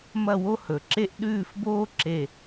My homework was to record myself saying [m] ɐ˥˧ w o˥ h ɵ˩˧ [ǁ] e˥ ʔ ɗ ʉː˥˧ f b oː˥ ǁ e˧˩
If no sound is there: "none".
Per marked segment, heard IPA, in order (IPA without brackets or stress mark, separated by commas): m, ǁ